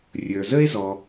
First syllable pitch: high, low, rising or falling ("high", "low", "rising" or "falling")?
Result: low